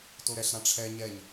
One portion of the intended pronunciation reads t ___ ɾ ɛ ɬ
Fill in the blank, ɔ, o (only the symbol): o